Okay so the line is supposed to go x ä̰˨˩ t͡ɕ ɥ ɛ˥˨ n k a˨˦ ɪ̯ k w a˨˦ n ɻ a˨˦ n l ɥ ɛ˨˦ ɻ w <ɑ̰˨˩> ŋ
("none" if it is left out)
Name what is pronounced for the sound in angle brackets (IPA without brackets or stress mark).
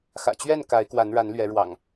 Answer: ɑ̰˨˩